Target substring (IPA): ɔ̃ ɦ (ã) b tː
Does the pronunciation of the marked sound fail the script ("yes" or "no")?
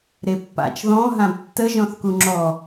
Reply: no